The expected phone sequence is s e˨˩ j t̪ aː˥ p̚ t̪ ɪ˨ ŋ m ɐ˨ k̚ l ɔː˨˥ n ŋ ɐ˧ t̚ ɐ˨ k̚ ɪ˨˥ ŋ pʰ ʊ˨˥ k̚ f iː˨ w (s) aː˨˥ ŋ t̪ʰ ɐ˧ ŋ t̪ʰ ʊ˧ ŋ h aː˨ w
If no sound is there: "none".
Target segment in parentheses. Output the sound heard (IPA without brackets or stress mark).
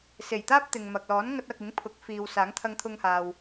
s